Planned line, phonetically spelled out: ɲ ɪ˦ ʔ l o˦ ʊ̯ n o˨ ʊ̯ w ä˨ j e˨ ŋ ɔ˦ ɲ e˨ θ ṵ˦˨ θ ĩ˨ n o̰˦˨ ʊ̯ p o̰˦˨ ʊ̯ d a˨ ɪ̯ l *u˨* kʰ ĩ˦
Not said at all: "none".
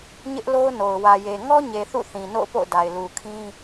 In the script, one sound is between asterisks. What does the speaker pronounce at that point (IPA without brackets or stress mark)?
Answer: u˨